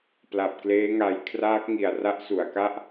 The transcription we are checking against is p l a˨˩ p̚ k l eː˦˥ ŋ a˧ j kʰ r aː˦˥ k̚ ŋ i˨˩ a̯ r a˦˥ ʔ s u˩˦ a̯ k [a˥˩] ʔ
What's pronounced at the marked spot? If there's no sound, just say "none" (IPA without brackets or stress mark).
a˥˩